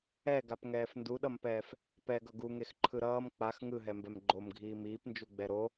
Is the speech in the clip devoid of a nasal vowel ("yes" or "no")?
yes